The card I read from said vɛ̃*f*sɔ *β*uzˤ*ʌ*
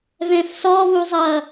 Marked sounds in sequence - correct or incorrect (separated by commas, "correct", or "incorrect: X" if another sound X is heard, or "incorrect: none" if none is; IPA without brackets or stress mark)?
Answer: correct, correct, correct